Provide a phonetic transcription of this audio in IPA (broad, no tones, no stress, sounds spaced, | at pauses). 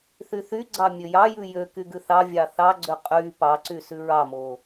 θ y θ y ɡ͡ǀ ɑ mʲ ø j ɑ j ʉ j ø k y ɡ ʉ θ ɑ vʲ ɑ θ ɑ ɡ͡ǀ ø qʼ y p ɑ ǀ y s ʉ ɹ ɑ m o